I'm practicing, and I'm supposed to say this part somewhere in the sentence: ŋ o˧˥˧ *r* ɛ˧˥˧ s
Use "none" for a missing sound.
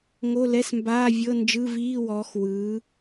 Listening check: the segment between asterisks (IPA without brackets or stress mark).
l